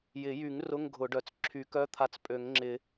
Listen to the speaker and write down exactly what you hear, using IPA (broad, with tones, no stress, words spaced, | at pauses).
jɪ˨˩˦jy˨˩˦ŋ rʊ˧˥˧ŋɡʱʊ˨˩˦ɖœ˨˩t͡s ǁʰy˨˩˦kœ˧˥˧t̪ʰa˨˦t͡s pʼø˨˩˦ŋŋ͡ǁɪ˨˩˦